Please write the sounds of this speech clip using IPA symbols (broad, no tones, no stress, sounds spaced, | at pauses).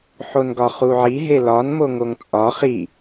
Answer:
ħ o n ɡ ɒ χ u ʕ i ɦ e l ɒ n m o ŋ o ŋ t͡sʼ ɒ χ i